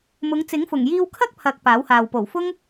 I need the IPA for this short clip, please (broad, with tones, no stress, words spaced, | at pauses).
mʊ˨˧ŋt͡sɪ˨˥ŋfʊ˨˩ŋ jiː˧wkʰɐ˥k̚ pʰɐ˨k̚ paː˨˥whaː˨w po˨˩wfʊ˥ŋ